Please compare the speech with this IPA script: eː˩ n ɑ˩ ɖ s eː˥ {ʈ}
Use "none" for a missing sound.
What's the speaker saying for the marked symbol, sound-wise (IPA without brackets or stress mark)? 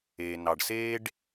ɖ